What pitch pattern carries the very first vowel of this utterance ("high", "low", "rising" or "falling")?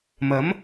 rising